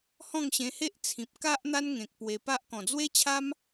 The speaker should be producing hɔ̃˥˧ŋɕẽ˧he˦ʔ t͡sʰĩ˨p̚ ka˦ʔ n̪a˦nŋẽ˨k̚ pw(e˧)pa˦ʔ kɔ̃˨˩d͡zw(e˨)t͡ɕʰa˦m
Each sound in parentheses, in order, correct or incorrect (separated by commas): correct, incorrect